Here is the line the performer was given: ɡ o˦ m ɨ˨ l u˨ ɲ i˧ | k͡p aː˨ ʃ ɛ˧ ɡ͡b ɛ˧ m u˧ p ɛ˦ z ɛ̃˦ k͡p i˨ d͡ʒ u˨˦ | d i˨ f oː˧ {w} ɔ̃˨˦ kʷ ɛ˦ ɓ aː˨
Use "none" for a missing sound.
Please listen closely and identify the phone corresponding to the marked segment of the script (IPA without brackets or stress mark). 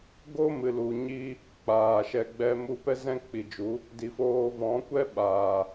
v